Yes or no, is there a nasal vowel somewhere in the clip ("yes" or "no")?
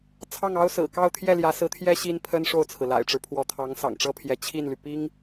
no